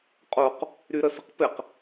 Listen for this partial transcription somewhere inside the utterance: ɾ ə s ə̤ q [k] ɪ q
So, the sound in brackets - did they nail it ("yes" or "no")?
no